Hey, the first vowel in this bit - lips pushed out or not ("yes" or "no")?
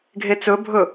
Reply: no